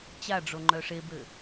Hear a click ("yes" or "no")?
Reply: yes